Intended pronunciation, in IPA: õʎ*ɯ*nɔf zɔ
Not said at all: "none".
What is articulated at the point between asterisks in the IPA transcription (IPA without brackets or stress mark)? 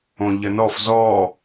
ə